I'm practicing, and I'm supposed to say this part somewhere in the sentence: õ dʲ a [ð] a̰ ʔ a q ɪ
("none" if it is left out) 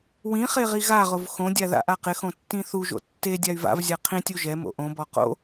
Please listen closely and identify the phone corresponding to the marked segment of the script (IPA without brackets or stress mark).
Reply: ð